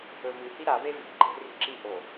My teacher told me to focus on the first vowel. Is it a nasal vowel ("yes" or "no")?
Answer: no